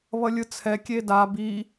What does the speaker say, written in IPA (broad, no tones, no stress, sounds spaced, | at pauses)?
β ʌ lʲ ɯ t͡sʰ ɛ kʲ e d a b i